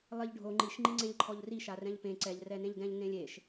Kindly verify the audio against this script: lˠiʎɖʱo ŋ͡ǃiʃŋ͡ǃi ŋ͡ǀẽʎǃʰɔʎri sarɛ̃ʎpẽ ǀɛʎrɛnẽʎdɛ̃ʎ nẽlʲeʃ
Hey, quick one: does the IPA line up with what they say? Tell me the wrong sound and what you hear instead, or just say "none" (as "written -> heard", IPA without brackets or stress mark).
s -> ʃ